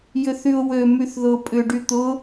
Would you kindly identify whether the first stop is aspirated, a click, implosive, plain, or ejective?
ejective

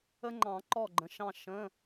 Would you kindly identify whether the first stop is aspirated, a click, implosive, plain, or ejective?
click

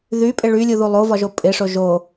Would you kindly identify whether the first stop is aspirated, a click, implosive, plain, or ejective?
ejective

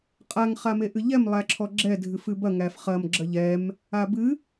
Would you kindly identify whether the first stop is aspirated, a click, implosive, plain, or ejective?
ejective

